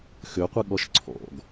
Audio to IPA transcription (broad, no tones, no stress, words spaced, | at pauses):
xøqʷɨ ɠɔʃǀʰɔ̰ɡ